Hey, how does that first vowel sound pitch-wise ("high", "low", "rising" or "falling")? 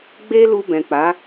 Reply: high